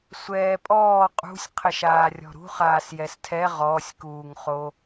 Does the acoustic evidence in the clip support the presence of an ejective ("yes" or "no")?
yes